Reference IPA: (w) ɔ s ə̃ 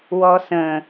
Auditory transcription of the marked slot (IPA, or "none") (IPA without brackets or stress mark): w